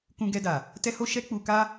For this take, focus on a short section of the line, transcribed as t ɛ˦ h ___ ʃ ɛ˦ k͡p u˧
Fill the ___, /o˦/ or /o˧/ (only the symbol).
o˦